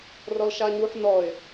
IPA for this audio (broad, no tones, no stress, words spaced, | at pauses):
rɔlʃaɲuħ nɔɪ̯